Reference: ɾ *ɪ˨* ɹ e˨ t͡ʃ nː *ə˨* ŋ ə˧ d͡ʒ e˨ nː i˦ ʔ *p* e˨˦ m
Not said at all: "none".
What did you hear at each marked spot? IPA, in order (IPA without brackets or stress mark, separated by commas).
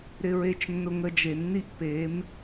ɪ˨, ʊ˨, p